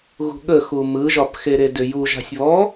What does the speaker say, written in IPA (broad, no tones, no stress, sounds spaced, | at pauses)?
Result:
ɣ ṳ ɠ ə x u m ɯ ʒ ɒ p x e ɾ e d ʏ j u ʒ a̤ sʲ β ɔ